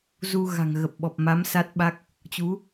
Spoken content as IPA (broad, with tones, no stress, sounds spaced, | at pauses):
z u˧ ɣ a̤˨˩ ŋ ɣ ə˨˩ p̚ ɓ ɔ˨˩ p̚ m a˨˦ m s a˦˥ t̚ ɓ a˦˥ k̚ | t͡ɕ u˨˦